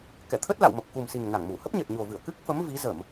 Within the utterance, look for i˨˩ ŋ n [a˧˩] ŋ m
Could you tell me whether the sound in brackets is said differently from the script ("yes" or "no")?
no